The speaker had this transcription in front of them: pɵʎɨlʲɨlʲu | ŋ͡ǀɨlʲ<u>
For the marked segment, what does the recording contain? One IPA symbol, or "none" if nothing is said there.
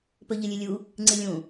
ũ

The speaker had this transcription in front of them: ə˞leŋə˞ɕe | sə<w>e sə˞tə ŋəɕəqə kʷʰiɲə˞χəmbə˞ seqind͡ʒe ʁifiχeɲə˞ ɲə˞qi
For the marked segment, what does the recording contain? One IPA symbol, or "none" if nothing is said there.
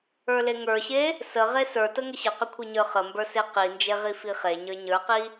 ʁ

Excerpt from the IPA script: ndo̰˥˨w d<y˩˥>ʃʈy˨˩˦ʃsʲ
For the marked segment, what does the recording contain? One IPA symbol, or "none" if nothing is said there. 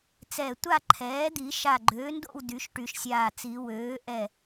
y˩˥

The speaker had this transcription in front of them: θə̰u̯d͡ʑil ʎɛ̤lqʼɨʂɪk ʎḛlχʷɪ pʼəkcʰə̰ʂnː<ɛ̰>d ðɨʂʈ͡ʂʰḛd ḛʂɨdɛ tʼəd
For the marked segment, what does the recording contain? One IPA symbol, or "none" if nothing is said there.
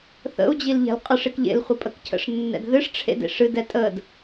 ɛ̰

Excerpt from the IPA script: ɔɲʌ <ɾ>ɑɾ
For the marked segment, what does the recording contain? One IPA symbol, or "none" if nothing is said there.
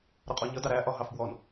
d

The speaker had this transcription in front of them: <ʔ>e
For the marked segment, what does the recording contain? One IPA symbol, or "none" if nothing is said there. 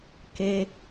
k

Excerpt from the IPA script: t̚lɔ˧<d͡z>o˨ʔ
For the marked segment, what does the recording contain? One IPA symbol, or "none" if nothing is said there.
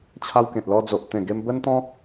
d͡z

